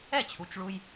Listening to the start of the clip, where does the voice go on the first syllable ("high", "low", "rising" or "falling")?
falling